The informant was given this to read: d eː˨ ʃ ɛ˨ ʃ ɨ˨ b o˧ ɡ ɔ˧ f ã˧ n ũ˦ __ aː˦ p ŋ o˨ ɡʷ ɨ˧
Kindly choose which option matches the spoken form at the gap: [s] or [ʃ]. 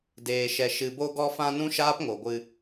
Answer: ʃ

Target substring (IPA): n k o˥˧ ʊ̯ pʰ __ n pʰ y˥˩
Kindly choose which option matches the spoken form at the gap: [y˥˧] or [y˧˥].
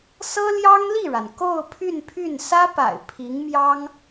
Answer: y˥˧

